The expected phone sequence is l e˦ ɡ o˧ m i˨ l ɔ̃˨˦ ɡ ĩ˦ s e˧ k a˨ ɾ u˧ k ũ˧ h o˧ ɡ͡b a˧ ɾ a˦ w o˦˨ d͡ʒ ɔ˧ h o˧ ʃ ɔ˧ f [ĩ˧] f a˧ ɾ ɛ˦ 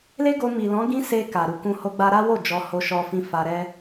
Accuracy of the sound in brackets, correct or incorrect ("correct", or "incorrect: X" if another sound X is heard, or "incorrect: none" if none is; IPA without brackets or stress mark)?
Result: correct